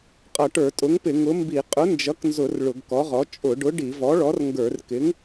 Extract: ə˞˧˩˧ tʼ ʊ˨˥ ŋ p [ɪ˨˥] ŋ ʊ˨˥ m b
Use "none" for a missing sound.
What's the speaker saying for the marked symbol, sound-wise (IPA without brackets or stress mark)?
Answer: ɪ˧˩˧